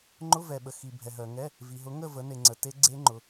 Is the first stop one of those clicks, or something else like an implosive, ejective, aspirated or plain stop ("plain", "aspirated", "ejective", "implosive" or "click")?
click